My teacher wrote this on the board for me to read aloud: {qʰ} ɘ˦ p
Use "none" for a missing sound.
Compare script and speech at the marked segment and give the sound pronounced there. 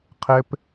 qʰ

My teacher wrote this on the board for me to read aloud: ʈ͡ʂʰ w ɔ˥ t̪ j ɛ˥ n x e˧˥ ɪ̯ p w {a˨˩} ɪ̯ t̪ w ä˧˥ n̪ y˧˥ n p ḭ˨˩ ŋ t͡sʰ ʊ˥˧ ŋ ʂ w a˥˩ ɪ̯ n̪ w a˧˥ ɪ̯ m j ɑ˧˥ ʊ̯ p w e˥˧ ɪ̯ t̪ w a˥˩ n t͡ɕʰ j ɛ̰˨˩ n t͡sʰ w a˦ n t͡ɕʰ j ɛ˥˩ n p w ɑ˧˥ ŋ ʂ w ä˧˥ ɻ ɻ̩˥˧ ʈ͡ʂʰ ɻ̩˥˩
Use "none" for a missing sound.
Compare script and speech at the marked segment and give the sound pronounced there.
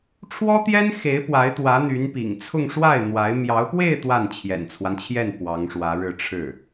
a˧˥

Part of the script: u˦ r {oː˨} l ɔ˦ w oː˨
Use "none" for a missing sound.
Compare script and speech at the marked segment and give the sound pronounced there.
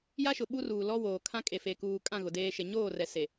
uː˨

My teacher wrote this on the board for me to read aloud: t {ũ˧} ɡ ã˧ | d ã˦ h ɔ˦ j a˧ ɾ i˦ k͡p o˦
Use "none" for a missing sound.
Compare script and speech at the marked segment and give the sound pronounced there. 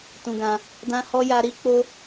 ũ˧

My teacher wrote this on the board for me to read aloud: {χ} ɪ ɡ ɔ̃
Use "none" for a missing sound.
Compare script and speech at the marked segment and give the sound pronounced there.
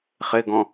χ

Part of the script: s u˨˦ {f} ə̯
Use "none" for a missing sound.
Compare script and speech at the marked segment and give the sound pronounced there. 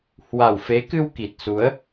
none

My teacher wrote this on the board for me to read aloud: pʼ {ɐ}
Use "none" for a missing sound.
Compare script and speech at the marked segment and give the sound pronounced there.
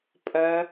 ɐ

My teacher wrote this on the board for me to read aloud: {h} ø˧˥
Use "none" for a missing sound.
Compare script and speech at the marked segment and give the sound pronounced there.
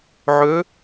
ʕ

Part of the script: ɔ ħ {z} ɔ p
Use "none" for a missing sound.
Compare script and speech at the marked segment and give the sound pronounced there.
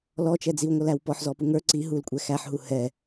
z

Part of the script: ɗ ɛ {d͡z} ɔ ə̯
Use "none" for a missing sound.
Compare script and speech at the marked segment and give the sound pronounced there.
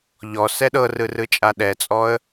t͡sʼ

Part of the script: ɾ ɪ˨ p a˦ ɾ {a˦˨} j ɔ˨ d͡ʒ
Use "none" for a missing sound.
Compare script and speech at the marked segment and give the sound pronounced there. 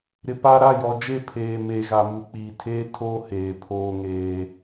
a˦˨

